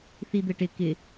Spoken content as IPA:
θ i d̪ ɘ ʈ ɪ k ɪ

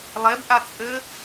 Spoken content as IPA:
lˠ e b ʔ a t͡sʼ ɘ

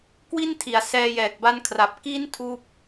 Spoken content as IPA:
k w i˥˩ n tʰ i˩˦ a̯ s ɛː˧ j ɛː˨˩ k̚ b a˦˥ n kʰ r a˨˩ p̚ k i˦˥ n tʰ uː˥˩ p̚

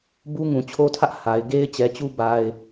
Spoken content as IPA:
b u˦ ŋ ũ˨ t͡ɕʰ o˦ tʰ ä˦ ʔ h a˨ ɪ̯ ɡ e˦ ɪ̯ t͡ɕ ɛ˨ t͡ɕ u˦ b a˦ ɪ̯

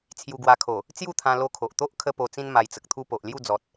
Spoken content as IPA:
t͡sʰ j u˧ ɡ w a˧ kʰ o˨˩ | t͡s j u˥˧ t̪ʰ ã˧ l o˧ kʰ o˨ ʔ t̪ o˦ ʔ kʰ ə˦ p o˧ t͡s ĩ˦ n m a˧ j t͡s ə˨ k̚ t̪ʰ u˦ p o˨ ʔ l j u˥˧ d͡z ɔ˨ t̚

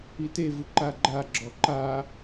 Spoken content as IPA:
i t e v ɯ ǃ a ɡ͡ǃ a ɡ͡ǁ ɔ ǃ a

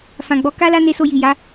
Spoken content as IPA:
f ã˨ ɡ͡b ɔ˨˦ k a˦ l a˦ n e˧ s o˧ j i˨ j a˨˦

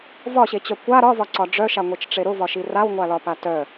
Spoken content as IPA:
v ɒ ɕ e t͡ɕ œ kʷ a ɾ ɒ v ɒ ǀ ɒ ɖ͡ʐ œ ʃ a ŋʷ e t͡ʃ ʈ͡ʂ e ɾ ʊ v ɒ ʃ i r a w ŋʷ a l ɒ p a t œ

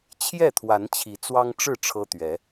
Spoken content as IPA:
t͡ɕʰ j ɛ˥˨ t̪ʰ w a˨˦ n t͡ɕʰ i˨˦ t͡s w ɑ˦ ŋ ʈ͡ʂ ɻ̩˥˨ ʈ͡ʂʰ ɤ˦ t̪ ɥ ɛ˨˦

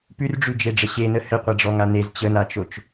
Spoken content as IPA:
p ʉ r ɖ͡ʐ ʉ d͡ʒ e ɖ͡ʐ ə ɕ e n ə h ɘ qʷ a ɖ͡ʐ ɔ ŋ a n e z t͡ɕ ə n a t͡ʃ o t͡ʃ

